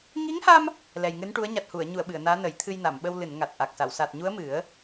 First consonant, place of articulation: velar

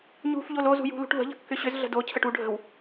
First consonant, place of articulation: palatal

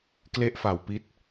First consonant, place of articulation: velar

